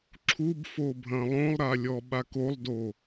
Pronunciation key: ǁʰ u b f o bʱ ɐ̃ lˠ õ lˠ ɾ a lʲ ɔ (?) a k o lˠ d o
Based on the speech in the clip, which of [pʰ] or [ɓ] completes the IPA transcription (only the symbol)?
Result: ɓ